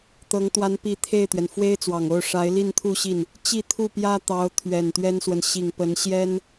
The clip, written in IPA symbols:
t̪ ɤ˧˥ ŋ t̪ w a˧˥ n p i˧˥ t̪ʰ e˥˩ ɪ̯ t̪ ɥ ɛ˩ n f w e˥ ɪ̯ t͡s w ɑ˨˩ ŋ o˥˩ ʊ̯ ʂ a˧˥ ɪ̯ l i˥˧ n t̪ʰ u˥˧ ɕ i˥˩ n | t͡ɕ i˥˧ t̪ʰ u˥˩ p j ä˥ t̪ ɑ˧˥ ʊ̯ t̪ʰ ɥ ɛ˨˩ n t̪ ɥ ɛ˥ n s w ə˨ n ɕ i˨˩ ŋ p ə˧˥ n ɕ j ɛ˥ n

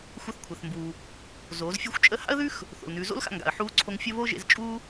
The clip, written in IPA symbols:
xʷ ɐ˧˥ θ kʷʰ ɛ˩ θ m b uː˩ | z oː˩˧ z fʲ u˧ xʷ t͡ʃʼ ə˧˥ h a̰˥ ə̯ ð ʉ˥ x | θ o̰˩ l n ʉː˩˧ z o̰˥ l x a̰˧ ŋ ɡ a̰˩ ə̯ ħ uː˧˥ ǀʰ o˧ ŋ fʲ ə˥ β oː˥ ʒ ḛ˧ z t͡ʃʼ uː˥

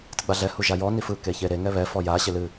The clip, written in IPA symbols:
t ɨ ɡ͡b a ɮ ɛ h u ʒ a j ɔ n i f ɯ k e ç e ɾ e ŋ ɛ β ɛ f ɔ j a ɕ ɪ l ɨ

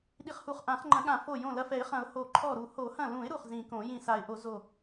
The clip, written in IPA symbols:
ɗ i˧˩ χ h u˧˩ χ ʔ ã˨˩˦ χ ŋ͡ǃ ɐ̃˨˩˦ ɠ ã˨˩˦ f o˧˩ j õ˧˩ l ɐ˧˩ f ɛ˨˩˦ ɪ̯ χ ɐ̃˨˩˦ ʊ̯ h o˨˩˦ ǃʰ ɔ˧˩ ɾ u˨˩˦ h o˨˩˦ h ɐ̃˧˩ l ũ˨˩˦ ɪ̯ ɾ u˧˩ χ z ĩ˨˩˦ k õ˨˩˦ j ĩ˧˩ s a˨˩˦ ɪ̯ ʔ o˨˩˦ z o˧˩

